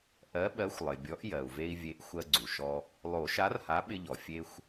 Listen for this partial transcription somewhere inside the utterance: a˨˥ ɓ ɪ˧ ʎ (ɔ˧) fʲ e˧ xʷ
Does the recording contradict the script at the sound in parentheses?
yes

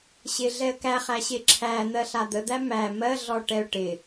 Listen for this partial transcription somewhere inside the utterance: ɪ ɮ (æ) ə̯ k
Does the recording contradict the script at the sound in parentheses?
yes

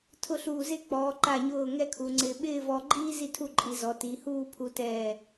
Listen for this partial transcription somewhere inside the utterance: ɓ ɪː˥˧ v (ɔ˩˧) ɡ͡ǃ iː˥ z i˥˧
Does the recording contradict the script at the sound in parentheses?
yes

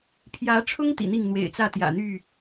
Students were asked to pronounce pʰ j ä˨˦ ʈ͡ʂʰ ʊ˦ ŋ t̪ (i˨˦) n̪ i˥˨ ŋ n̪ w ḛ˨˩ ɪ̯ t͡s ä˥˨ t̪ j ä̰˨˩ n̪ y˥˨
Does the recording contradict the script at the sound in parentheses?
yes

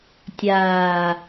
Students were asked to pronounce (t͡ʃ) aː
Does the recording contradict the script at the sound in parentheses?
yes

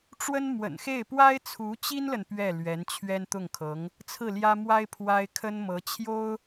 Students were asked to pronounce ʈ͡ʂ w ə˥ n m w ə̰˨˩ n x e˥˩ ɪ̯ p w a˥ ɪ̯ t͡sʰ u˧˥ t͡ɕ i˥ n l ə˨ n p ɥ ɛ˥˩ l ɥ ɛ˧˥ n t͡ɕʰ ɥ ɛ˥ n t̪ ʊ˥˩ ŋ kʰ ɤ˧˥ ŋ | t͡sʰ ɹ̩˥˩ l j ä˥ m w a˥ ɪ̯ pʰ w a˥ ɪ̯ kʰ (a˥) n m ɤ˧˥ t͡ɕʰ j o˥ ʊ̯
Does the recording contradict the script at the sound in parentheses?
yes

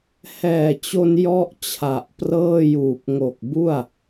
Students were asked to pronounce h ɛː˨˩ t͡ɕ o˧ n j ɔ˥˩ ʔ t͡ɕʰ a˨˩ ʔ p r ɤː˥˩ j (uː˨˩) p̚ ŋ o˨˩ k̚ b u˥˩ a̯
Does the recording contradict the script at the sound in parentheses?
no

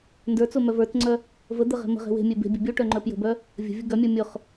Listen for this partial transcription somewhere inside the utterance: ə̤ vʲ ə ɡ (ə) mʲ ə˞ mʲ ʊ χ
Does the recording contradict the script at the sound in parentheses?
yes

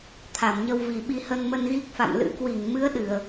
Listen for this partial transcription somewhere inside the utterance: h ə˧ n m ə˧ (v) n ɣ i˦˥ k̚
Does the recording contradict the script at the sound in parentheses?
yes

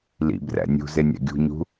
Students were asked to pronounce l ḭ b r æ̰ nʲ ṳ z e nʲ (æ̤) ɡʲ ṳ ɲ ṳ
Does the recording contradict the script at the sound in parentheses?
yes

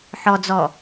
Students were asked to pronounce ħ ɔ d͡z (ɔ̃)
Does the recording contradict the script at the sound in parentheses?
yes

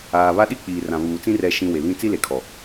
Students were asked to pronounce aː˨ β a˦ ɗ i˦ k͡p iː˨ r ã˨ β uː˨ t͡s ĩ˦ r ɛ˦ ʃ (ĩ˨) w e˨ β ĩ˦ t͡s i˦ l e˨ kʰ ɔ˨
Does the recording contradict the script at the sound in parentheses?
yes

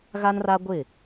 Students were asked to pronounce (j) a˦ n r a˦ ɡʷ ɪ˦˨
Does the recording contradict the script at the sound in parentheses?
yes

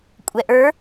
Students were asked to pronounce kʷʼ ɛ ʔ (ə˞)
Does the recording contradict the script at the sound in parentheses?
no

